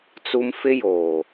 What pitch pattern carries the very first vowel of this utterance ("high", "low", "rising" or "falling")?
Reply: high